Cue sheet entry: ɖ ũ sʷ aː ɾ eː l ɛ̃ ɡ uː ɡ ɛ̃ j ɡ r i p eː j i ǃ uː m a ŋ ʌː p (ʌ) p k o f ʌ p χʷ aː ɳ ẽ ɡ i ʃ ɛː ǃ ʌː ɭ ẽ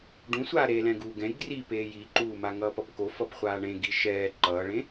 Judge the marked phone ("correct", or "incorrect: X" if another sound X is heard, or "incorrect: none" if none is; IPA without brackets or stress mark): correct